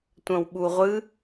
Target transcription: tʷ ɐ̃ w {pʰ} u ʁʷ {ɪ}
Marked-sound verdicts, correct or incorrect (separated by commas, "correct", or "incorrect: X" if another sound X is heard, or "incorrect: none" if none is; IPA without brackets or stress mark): incorrect: ɓ, incorrect: ɨ